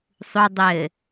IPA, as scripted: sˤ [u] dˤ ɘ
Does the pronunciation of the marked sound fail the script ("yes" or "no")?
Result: no